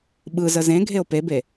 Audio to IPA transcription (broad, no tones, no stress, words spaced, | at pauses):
ɓɯzə zẽɡʱeo̯ pebe